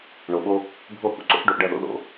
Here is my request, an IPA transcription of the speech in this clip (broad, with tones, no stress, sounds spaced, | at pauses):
ɳ o˨ ɓ o˦ | bʱ o˦˨ h ṵ˨˦ ǀ o̰˦ θ ɖ o˨ ʔ ɖ ɐ˦˨ ð o̰˦ ð o̰˦